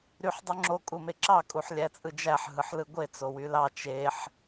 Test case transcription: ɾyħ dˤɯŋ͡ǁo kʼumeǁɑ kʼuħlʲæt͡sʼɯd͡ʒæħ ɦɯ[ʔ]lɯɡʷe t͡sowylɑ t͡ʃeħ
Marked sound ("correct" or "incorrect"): incorrect